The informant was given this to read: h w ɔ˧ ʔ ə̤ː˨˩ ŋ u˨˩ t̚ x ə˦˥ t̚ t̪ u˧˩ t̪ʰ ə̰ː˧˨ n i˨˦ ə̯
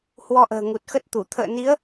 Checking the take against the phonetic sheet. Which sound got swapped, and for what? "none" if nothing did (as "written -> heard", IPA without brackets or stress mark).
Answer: none